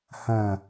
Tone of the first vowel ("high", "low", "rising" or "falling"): low